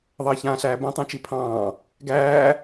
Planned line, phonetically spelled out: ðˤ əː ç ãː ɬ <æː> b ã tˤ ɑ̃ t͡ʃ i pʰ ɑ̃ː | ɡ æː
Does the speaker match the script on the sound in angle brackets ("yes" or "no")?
yes